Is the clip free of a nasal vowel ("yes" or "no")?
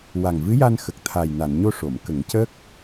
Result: yes